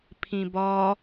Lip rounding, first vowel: unrounded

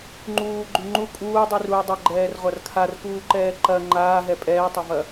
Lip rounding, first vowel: rounded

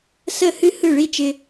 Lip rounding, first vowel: unrounded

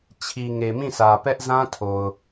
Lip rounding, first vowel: unrounded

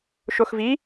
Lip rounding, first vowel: rounded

